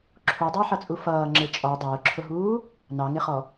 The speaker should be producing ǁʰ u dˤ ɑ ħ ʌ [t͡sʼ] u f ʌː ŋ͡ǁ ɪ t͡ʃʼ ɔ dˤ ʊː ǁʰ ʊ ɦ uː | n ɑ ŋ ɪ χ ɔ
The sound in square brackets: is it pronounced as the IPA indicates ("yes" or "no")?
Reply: yes